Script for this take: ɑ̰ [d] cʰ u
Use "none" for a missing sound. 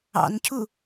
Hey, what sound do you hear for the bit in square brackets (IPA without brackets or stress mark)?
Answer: n